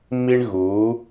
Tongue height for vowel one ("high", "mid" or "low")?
high